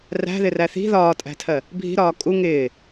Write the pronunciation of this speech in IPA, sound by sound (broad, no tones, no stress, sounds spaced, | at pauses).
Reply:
r æ̤ ð ɪ r æ θ i̤ ð ɒː tʼ æ̤ tʰ ɜ | bʱ i̤ ɾ ɒː kʼ u ŋ ɪː